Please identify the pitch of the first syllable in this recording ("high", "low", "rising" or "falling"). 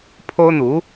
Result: high